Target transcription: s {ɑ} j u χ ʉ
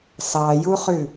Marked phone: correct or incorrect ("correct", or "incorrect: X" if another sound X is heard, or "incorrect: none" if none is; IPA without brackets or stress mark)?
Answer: correct